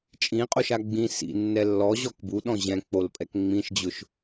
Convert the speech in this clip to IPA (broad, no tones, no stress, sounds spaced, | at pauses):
t͡ʃʼ ĩ qʼ o ʃ a ɡ͡b ĩ s ḭ nː ɛ lː ɔ ʑ ɔ k b u ɗ ɔ̃ ʑ ɛ̃ k͡p o l pʼ ɛ k ŋ͡m ĩ ʃ d͡ʑ ʊ ʃ